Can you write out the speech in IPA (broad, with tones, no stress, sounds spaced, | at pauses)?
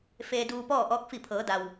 f eː˧ d uː˧ p ɔː˥˨ ʔ ɔː˧˥ k̚ f i˧˩ pʰ ɤː˩˧ d a˩ w